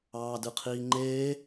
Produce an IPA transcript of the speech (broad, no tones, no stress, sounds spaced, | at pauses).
ɑː d ɯ qʰ iː ŋ͡ǃ eː